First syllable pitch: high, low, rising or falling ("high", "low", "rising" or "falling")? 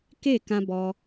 falling